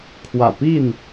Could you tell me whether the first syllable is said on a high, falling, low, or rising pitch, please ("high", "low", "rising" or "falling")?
low